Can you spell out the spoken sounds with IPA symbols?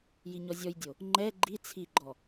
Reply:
jiɲɔzʲɔjdʲo | ŋ͡ǃɛ ɡ͡ǃi t͡sʰiɡ͡ǃɔ

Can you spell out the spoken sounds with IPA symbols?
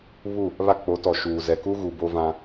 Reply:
βu˦˨ | βa˦ k͡po˨˦tɔ˨ʃuː˨ zɛ˨ku˦ɣu˨ bo˦vã˦

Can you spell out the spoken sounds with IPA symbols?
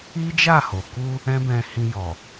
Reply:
i˦d͡ʒa˦˨ho˨ ku˧ | ɛ̃˦bɛ̃˧hĩ˧jɔ˨

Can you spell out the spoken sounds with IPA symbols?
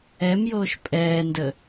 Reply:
ɛmjoːʃ pʼɛːndə

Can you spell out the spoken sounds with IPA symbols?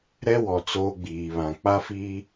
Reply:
ɾɛ˦wɔ˨ t͡soː˦ɡ͡biː˨βã˨ k͡pa˦fiː˦

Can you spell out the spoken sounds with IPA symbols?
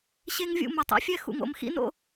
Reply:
ɕe˦ŋvʲṵ˦˨mo˨tˤ ḛ˦fʲɛ˦ xṵ˨ŋo̰˨mxḭ˦no̰˦

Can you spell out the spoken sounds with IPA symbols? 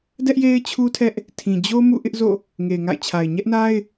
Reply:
dɛ˦ʔ je˦ɪ̯t͡ɕʰu˦ tʰɛ˦ʔ | tʰĩ˨ d͡ʑo˦ mṵ˦˨ʔɪ˦ʔzo̰˦˨ | ŋe˨ɪ̯ŋa̰˦˨ɪ̯t͡ɕʰa˨ɪ̯ ɲɛ˦ʔna˦ɪ̯

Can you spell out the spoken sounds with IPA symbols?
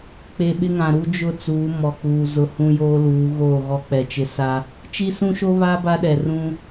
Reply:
k͡pe˨ɓɪ˦ŋã˨ ɾu˦d͡ʒʊ˦˨t͡suː˨˦ mɔ˨k͡puː˨ zʊ˨ hũ˦joː˦luː˨˦ ɣoː˦˨ɣɔ˦k͡pɛ˨t͡ʃɪ˦ sa˦ | t͡ʃi˦sũ˦ʃo˦ βa˦ ba˦ɗɛ˨ rũ˦

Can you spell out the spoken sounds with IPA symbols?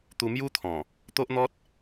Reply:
t̪u˧mju˦t̪ʰɔ̃˨˩ | t̪o˦ʔn̪ɔ˦t̚

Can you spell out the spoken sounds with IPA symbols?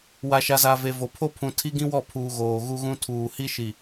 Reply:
wa˨ʃa˨za˨ ve˨vo˨ pʰo˦pʰũ˨tʰi˦ ɡĩ˦wɔ˦˨pʰuː˨ ɣoː˨ɣu˦ɣũ˦ tʰuː˨hi˦ʃi˨

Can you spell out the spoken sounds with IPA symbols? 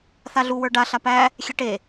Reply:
θaɮu wə˞ɖa ɬapæ | xʲeʈe

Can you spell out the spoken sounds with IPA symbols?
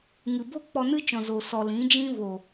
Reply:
ŋɨ˨bo˦ k͡pɔ˧nɨ˦t͡ʃɔ̃˨ zo˨sɔ˨ lĩ˨˦ d͡ʒĩ˦ vo˨

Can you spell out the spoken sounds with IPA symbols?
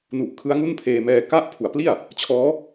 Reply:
nu˨˩ʔ kʰɯ˦˥a̯ŋu˥˩npʰeː˧mɛː˧ ka˦˥ʔ pʰu˩˦a̯pli˥˩a̯ | t͡ɕʰɔː˦˥

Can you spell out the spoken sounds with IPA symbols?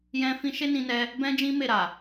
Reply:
jɛ̃˦fĩ˦ ʃe˦nĩ˧nɛ˧ | bɛ̃˦d͡ʒĩ˦me˦˨ɾa˨

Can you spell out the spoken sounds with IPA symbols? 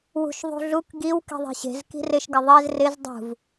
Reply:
wṳʃðˤṳɮuk ɡiw ki̤ðˤe̤ɕe̤z ki̤rɪʃ ɡɪðˤez rɪz dˤṳv

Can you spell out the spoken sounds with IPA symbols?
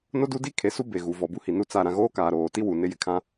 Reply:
no˦du˦di˦ kʰe˨su˦ be˨ɣu˨ vɔ˨bu˦hi˨nu˦˨ t͡sa˦˨ ɾã˦ ɣoː˦kaː˨ɾoː˨ti˦ wu˨nɪ˦jɪ˨ kʰã˦

